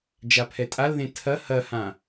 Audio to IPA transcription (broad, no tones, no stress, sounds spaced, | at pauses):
d͡ʒ a pʰ ɛ tʼ a l ð ẽ tʰ ɐ h ɐ h ã